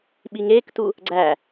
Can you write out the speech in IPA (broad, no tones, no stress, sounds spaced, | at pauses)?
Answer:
ɓ i ŋ eː k t u | ɡ͡ǀ æ